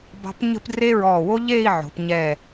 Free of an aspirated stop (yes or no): yes